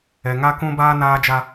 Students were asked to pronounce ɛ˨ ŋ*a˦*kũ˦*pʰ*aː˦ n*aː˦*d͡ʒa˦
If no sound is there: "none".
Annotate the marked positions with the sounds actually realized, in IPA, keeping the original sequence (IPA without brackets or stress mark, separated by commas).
a˦, b, aː˦